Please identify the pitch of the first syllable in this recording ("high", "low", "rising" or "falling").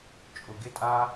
low